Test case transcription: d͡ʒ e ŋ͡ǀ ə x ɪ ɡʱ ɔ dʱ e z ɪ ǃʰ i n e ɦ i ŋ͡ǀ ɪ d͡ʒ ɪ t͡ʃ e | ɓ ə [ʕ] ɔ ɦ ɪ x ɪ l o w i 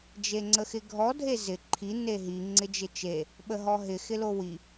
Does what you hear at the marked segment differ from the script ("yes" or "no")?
yes